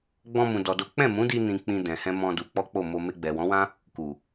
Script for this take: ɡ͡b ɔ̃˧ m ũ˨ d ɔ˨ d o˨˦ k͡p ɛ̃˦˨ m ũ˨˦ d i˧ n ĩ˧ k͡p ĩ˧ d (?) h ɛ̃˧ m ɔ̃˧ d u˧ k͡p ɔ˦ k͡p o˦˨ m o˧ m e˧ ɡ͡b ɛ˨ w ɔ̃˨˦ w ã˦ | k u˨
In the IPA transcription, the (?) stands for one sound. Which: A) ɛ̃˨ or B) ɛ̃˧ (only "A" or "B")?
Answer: A